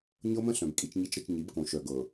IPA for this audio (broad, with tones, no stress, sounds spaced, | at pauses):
ɲ ɤ˦ m ə̃˦ ɬ œ̃˨ b kʼ i˨ t͡ʃ ɲ i˨ t͡ʃ ɾ ə˨ t͡ʃ ɲ i˨˦ b k õ˨ ʃ œ˨ ɡ ɤ˨